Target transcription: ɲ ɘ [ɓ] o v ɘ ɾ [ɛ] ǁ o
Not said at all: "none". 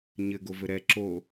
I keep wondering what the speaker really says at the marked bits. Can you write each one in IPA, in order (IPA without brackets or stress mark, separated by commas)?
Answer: ɡ, ɛ